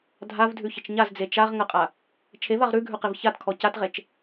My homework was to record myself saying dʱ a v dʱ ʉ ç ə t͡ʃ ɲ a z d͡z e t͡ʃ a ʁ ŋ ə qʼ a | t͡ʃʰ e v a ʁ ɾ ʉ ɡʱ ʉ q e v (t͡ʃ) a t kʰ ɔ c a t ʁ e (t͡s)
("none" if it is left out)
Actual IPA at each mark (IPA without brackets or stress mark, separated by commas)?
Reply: ç, t͡ʃ